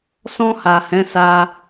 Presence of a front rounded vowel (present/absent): absent